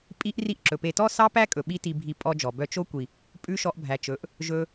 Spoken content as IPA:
pʼ i˦ ʔ r i˦ ʔ ǁ ɵ˨ p e˧ t ɔ˦ s ɑ˦ p æ˦ kʼ ɵ˨ ɓ i˦ t i˧ bʱ i˧ pʼ ɔ˧ d͡ʒ ɔ˨ b œ˦ t͡ʃ o˦ kʷ i˨ | pʼ ʉ˦ ʃ ɔ˧ ʔ bʱ æ˨ t͡ʃ ɵ˨˦ ʔ | ʒ ɵ˧

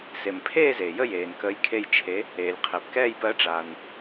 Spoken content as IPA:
s e˩ m pʰ eː˦˨ z eː˩ j ə˦˨ j eː˩ n k əː˨˥ j kʰ e˦˨ j t͡ʃʰ e˨˥ | eː˩ lʲ qʰ ɛ˩ p k ɛː˦˨ j p ɜ˨˥ ʈ͡ʂ aː˩ n

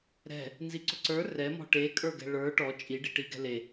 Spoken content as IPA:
ɾ ɛ̤ | n z i ǀ ʊ ǀ ə˞ r ɛ m ɔ̤ ʈ e kʼ ə˞ ɡ ɛ̤ ɭ ə˞ ʈ ɔ t͡ʃʼ i ɖ i ʈ i ɡ ɛ̤ l e

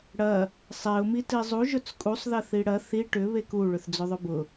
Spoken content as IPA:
ɽ ɐ | sˤ e ʊ̯ m i t i zˤ u ʒ ɵ t͡s kʼ u sˤ ð ɐ θ i ɽ ɐ θ i ʈ ʏ β e k u ɭ ʏ θ d͡z ɵ ðˤ ʊ b ʊ

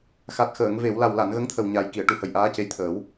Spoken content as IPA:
x a˨˩ t̚ x əː˨˩˨ ŋ v e˨˩˨ w l a˨˩ w l a˨˩˨ n ɣ ə˧˥ ŋ t̪ʰ ə˨˩ w ɲ a˨˩ j k i˨˩˨ ə̯ ʈ u˨˩ h ə˨˩ j ʔ aː˧˥ c e˧˥ j t̪ʰ əː˨˩˦ w

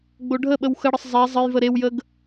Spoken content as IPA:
ɡ͡b o ɖʱ ə ɓ ə w x ə ɽ ə sˤ zˤ ɛ zˤ ə j v ə ɾ e w j ə ɡ

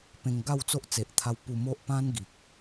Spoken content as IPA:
p ẽ˧ ŋ ɡ a˥˧ w t͡s o˦ ʔ t͡s e˨ ʔ t̪ʰ a˧ w p u˧ m o˦ ʔ p ã˦ n ɡ i˨ k̚

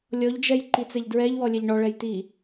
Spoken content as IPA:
lʲ ɔ ʎ d͡ʒ ɛ j ǃ i t͡s ɛ ʎ d ɹ ɛ ʎ w ɔ lʲ ɛ ʎ ɳ ɔ ɭ ɛ j t̪ i

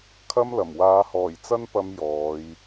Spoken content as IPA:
kʰ ɐ˥ m l ɐ˨˩ m w aː˨˧ h ɔː˨˩ j t͡s ɐ˥ n p ɐ˧ m j ɔː˨˧ j

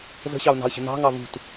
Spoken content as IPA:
z ə̤ ɕ ɑ ʊ̯ n ɑ̤ ə̯ ɕ ə̤ n ɑ̤ ŋ ɑ v ṳ t

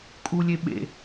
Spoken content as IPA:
kʼ u lʲ e ɓ ḛ

